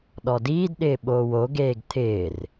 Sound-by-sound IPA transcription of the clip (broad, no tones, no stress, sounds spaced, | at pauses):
ɗ ɔ d iː d ɗ ɪː ɓ oː w o ɡ eː ɡ t̪ʰ ɪː r